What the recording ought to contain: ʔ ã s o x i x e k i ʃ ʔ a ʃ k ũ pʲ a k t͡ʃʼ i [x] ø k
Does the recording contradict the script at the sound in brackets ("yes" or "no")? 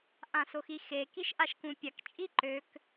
yes